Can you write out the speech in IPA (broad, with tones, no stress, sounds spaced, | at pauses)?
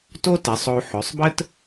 t o˥ t ɛ˩˧ sˤ o˧ u̯ ħ ø˩˧ sˤ b ə˥ t